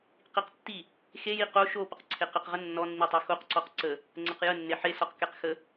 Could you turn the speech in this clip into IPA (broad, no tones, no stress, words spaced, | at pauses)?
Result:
qiqtːi | xeji qo ʃo pəqǀʰeqɘqʁə nːɔnːitˤɛ xoqǀɔq ǀə | ŋ͡ǀəqjə nːeħesɔq kɛqxə